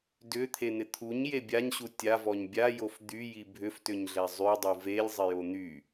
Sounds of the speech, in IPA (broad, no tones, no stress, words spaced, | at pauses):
dʏt̪ʰen̪ɪ t̪ʰuɲje bʲaɲɕu tʲavɔɲ bʲajof d̪yji bʱʏftʏɲɮɛ zˤydˤu velʲzˤɪjo n̪y